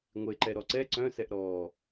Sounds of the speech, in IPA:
ŋʷ e ǃ ɛ ɾ ɔ ǀ ɛ ǀ œ̃ s ɛ ʔ ɾ ɔː

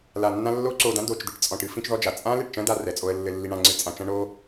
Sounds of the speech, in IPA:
l a˨ nː ã˧ lː o˦ ǀ o˧ d ã˦ d o˨ t͡ʃ d̪ i˧ ʈ t͡sʼ ɔ̃˨ ʈ ɨ˦ f ĩ˦ t͡ʃ ð ɔ˦ d͡ʒ a˨ t͡sʼ ã˦ l e˨ ʈ t͡ʃ ɐ̃˦ d a˧ r ɛ˨ t͡sʼ o˧ ə̯ lː ɘ˧ lː i˧ ɳ ã˧ ŋ͡ǀ ɨ˧ t͡sʼ ã˧ t͡ʃ ɐ̃˦ ɳ o˦

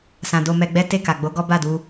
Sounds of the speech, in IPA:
s ã˨ d o˧ m ɛ˧ ɡ͡b ɛ˦ t e˦˨ k a˨ ɡ͡b o˨˦ ɡ ɔ˦ b a˦˨ d u˧

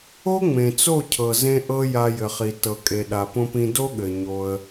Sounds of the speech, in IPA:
o˦ ŋ͡m ẽ˨ t͡s o˦˨ cʰ ɤ˨ z ẽ˧ ʔ ɤ˦ j a˧ j ɘ˨ χ i˨ t ɤ˨ kʼ e˨ ɗ a˨ p õ˧ p ĩ˧ d o˦ ɠ ɘ˨ ɲ o˧ ə̯

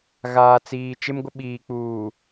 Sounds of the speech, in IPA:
ɣ aː˨ t͡s iː˨ t͡ʃ ɪ˦ m ɡʷ ɪ˦ ɓ iː˨ k͡p uː˨

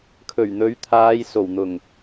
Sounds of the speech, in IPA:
kʰ ɵ˨˩ ɥ n̪ ɵ˨˥ ɥ t̪ʰ aː˨˧ j s o˨˩ w n̪ ʊ˨˩ ŋ

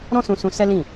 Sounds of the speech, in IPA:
ɾ ɔ̃˦ s ũ˧ s ũ˧ s ɛ˦ l ĩ˦˨

